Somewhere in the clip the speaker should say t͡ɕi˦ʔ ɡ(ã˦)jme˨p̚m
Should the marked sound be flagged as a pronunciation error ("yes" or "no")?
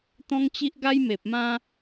yes